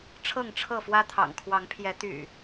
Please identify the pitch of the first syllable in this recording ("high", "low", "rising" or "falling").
falling